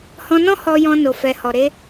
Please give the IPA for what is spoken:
h ɔ̃˧ n ɔ̃˦ h ɔ˧ j ɔ̃˧ n o˨ f ɛ˨ h ɔ˨ ɾ e˧

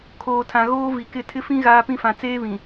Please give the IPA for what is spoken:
kʰ oː˨ tʰ ã˨ ɣ oː˦ v i˨ k ɪ˦˨ tʰ ɪ˦ f ĩ˦ ɣ aː˦ p ĩ˦ f ã˨ t͡s eː˦ β ĩ˨

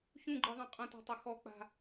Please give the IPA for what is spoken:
ç ũ ɡ͡ǃ ɯ ðˤ ã qʼ ɐ̃ t a̤ tˤ ɐ x ɔ k͡p a̤

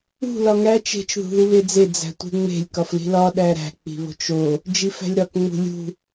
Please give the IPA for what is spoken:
ṳ l ɒ ŋ æ t͡ʃ e̤ t͡ʃ ð ṳ ð u β e d͡z e d͡z æ̤ tʷ e̤ ŋ͡m e̤ lʲ k ɒ f l i̤ l ɒ ɗ æ ɾ æ̤ k͡p i̤ β o̤ t͡ʃ o | d͡ʒ i f æ̤ lʲ ɾ ɒ k ŋ͡m ṳ lʲ ṳ

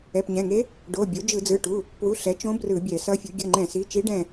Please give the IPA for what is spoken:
ɛ˩˧˩ p ɲ ɛ̃˩˧˩ ŋ e˧˥ | ɖ o˩˧˩ bʲ o˩˥ d͡ʒ ɯ˧˩˧ d͡z ɯ˩˧˩ ʈ u˩˧˩ | p w u˩˧˩ ɬ ɛ˩˥ t͡ʃ õ˧˥ b r ɯ˧˩˧ bʲ ɛ˧˩˧ s ʌ˧˥ fʲ u˩˥ ɡʲ ʌ˩˧˩ ŋ͡ǃ ɛ̃˧˩˧ s i˩˧˩ t͡ʃ i˧˥ ɖ ɛ̃˦˨

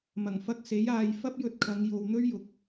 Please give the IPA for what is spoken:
m ɐ˨˩ ŋ f ɐ˧ k̚ s e˨˥ j aː˨˧ j f ɐ˥ p̚ j ɵ˧ t̚ kʰ ɐ˨˧ ŋ j o˨ w n̪ ɵ˥ ɥ j ʊ˨ k̚

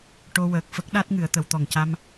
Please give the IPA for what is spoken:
ʈ o˧ w əː˨˩ k̚ f ə˦˥ k̚ ɗ a˦˥ t̚ ŋ ɨ˨˩˨ ə̯ t̪ ə˨˩˨ w t̪ ɔ˨˩ ŋ c a˧ m

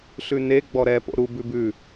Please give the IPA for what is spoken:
ɬ ʉ n e ɡ͡b ɔ ɾ ɛ p o̰ ɾ u b ʉ b ʉ

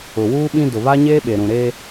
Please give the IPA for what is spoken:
ʊ˨ w uː˦ ɓ ĩ˦ d ʊ˨ β a˦ ɲ eː˦ ɓ e˨ ɾ ũ˨ ɾ e˦

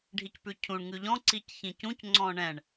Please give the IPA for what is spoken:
ɖʱ i c p ʉ cʰ ũ ɳ ŋ ʉ ʎ ɔ̃ ǀ i c ç ĩ c ũ c ŋ͡ǀ ɔ̃ ɳ ɛ̃ ɳ

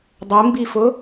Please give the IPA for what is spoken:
dˤ ɘ m b i f ʊ

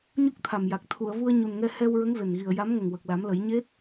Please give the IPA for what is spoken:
ɲ u˦˥ k̚ t̪ʰ a˨˩ m j a˨˩ k̚ t̪ʰ u˨˩˨ ə̯ v u˧ ə̯ ɲ u˨˩ n ŋ ɛ˧ h ɛ˧ w ɹ ə˧˥ ŋ v e˨˩ n ɣ i˨˩ ə̯ j a˧˥ m ŋ ə˨˩ ŋ w ə˨˩ k̚ l a˨˩˦ m l ə˨˩˦ j ɲ e˦˥ t̚

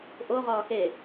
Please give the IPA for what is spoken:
ʔ o ʁ ɒː x e

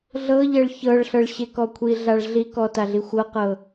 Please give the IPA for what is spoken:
ɮ ɤ ʎ ɛ ɭ ç ɤ ɭ ɬ ɤ ɭ ɕ e k ɔ kʷʰ i ɮ a ɭ ɮ i k ɔ t a ɮ i xʷ ɤ q ɤ

